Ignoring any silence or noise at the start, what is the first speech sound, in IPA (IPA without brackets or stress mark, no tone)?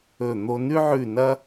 ɵ